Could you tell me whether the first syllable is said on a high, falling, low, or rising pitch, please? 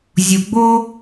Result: low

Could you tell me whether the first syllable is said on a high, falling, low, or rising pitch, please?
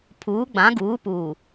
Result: rising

